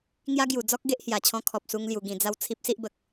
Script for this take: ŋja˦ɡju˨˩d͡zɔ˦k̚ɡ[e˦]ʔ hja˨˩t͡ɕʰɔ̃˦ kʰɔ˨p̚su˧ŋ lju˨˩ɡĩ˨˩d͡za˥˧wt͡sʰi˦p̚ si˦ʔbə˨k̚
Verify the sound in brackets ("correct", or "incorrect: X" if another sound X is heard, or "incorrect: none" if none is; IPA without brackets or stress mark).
correct